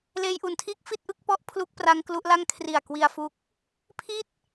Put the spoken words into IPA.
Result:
leː˧jʔu˨˩ntʰiː˥˩k̚ fi˥˩t̚ʔɯ˥˩k̚pɔ˦˥ʔ pʰlu˦˥k̚ pra˦˥ŋklu˦˥ʔla˥˩ŋ kʰri˨˩a̯kwi˧a̯ fu˦˥k̚ | pʰiː˥˩t̚

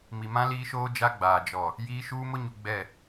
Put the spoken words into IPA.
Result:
mi˨mã˦ liː˦ʃoː˦ d͡ʒa˦ ɡ͡baː˨ d͡ʒɔ˨ | jiː˦ ʃuː˦mʊ˦ɲu˨ ɡ͡bɛ˦˨

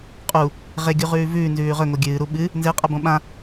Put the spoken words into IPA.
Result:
qʼu | ʁeɡʲuʁʉː vʉːnzʉː ʁɵŋo ɡʲɨːɾu ɓɨ | nzeqʼabõ ɓã

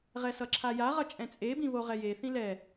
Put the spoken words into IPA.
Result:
ʁɛsʌǁʰaja ʁʌt͡ʃʼɛ̃t͡sʼebĩ βoʁɛje θĩlɛ

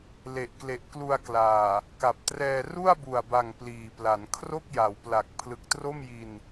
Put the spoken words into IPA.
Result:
le˨˩ʔkle˨˩ʔklu˧a̯klaː˨˩ | ka˨˩p̚trɛː˧ ru˥˩a̯bu˨˩a̯ba˨˩ŋ pliː˨˩pla˩˦n kʰro˥˩k̚ja˩˦wpla˨˩k̚ pʰlɯ˨˩k̚tro˥˩mji˧n

